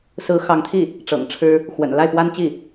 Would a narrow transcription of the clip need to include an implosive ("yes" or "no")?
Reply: no